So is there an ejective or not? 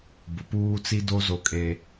yes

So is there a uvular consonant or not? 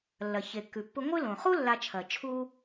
yes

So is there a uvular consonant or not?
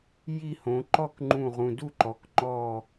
yes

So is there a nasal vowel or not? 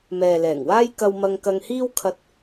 no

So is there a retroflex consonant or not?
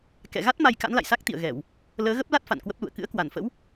no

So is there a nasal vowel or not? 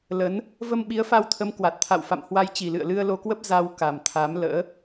no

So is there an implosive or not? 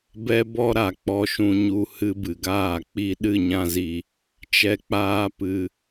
yes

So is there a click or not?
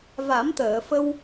no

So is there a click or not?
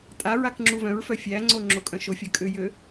yes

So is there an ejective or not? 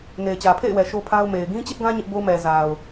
no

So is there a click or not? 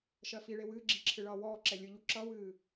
yes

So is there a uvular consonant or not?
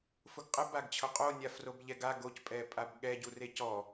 yes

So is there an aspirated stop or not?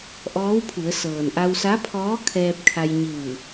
yes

